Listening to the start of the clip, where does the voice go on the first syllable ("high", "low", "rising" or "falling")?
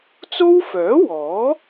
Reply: high